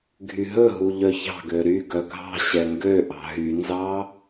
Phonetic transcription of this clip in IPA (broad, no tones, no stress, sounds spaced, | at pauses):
ɡʱ y ɦ ɵ ɦ u ʎ œ ç ɑ̤ ɡ ø ɾ y ɡ œ ɡʱ ɑ̤ ɕ ɛ ŋ ɡ ø ʔ ɑ̤ ɦ y n z ɑ